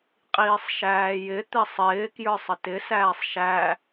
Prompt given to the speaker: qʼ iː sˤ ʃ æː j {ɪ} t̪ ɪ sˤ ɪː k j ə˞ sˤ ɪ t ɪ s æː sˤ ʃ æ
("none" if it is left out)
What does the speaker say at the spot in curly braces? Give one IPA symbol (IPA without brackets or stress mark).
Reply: ɪ